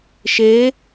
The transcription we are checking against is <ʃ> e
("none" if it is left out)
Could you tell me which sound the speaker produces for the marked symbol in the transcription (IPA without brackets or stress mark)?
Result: ʃ